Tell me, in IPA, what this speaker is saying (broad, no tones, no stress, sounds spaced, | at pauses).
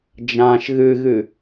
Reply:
d͡ʒ ã ʃ ɣ ɨ ɣ ɨ